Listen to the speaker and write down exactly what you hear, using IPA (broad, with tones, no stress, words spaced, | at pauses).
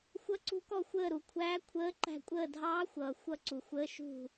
xʷʌ˧˥ǀṳ˧˥kɔ˦˨ xʷəː˦˨ɾu˨kʷʰæː˧˥ kʷʰəː˧˥ǃæ̤˦˨ kʷʼəː˦˨dʱɑː˧˥xʷʌː˨ xʷʌ˦˨ǀu˨xʷəː˧˥ ʃṳ˦˨